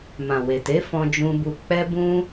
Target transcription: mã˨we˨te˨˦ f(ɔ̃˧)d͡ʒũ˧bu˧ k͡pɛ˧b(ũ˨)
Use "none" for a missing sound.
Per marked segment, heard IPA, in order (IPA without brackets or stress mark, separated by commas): ɔ̃˧, ũ˧